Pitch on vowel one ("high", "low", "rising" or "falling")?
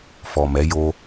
low